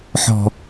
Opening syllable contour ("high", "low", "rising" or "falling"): high